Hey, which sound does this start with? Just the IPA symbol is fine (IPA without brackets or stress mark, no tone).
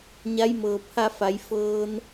ɲ